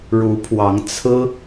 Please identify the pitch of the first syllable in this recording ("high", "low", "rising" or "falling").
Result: rising